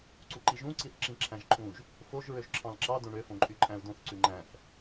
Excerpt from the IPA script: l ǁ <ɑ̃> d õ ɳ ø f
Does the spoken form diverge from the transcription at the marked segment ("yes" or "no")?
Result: yes